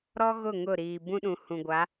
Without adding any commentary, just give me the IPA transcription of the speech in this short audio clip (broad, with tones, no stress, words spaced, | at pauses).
ɾɔ˦ɣʊ˦˨ ŋʊ˦˨ɾiː˨ bũ˦ɗũ˨hũ˨ ɡʷa˨˦